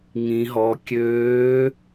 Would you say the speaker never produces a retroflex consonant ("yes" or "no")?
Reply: yes